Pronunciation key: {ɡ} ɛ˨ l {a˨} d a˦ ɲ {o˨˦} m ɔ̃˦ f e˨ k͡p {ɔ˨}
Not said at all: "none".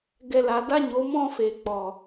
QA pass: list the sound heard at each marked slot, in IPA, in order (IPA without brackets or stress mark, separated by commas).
ɡ, a˨, o˨˦, ɔ˨